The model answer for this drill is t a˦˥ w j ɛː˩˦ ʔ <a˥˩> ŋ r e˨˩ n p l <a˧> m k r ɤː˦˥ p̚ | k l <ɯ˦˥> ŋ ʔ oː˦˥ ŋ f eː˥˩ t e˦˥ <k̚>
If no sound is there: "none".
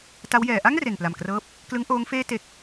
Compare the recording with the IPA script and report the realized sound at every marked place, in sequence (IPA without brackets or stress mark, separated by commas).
a˥˩, a˨˩, ɯ˦˥, k̚